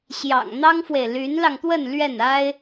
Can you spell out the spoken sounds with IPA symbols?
ɕ j ɑ̰˨˩ ŋ n̪ ɑ˥ ŋ f w e˨ ɪ̯ l y˧˥ n l ɑ˧ ŋ t̪ w ə˥˧ n l ɥ ɛ˥˩ n a˥ ɪ̯

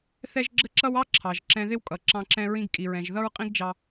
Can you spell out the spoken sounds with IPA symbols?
θ ɛ˥ ʒ ɡ͡ǁ ə˥ ǁ ʌ˥ w ɑ˥ ǁʰ ɑ˩ ʒ ǁ ɛ̃˧ ð ɪ˥ w kʼ ʌ˩ ǁ ɑ̃˧ ǁ ɛ̃˧ ɹ ĩ˧ ɡ kʼ i˩ ɹ ɛ̃˩ ʒ ð ʌ˥ ɹ qʼ ĩ˥ ɡ d͡ʒ ɑ˧

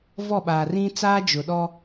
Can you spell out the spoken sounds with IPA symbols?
v ɔ˦˨ ɓ aː˨ r ĩ˦ t͡s aː˦ d͡ʒ ʊ˨ ɗ ɔ˦

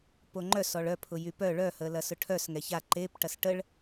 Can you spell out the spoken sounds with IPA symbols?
p o ŋ͡ǃ œ s ɔ ɭ œ pʰ ʊ j y p œ ɭ œ h əː l ɐ s ʊ ʈʰ œ s ŋ ɛ ç a ǃ e p ʈ ɐ s ʈ ə ɭ

